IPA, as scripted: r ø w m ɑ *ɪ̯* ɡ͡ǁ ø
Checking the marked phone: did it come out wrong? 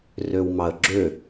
yes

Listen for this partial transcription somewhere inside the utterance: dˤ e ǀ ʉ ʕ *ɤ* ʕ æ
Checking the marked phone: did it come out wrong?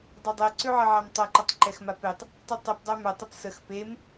no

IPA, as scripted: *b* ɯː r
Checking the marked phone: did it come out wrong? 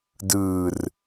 yes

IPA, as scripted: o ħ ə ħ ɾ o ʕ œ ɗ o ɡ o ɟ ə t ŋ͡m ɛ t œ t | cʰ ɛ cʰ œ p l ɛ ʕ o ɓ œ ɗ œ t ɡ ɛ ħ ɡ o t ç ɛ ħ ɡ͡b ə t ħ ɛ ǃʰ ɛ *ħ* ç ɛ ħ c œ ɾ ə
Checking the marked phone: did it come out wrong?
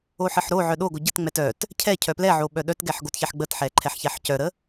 no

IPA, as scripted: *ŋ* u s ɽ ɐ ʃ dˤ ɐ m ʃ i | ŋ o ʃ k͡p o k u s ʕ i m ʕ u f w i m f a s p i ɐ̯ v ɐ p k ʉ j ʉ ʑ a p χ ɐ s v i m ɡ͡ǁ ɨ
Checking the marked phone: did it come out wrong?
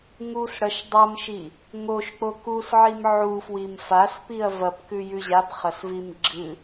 no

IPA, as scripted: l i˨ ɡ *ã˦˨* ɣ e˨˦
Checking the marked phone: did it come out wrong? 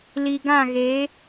no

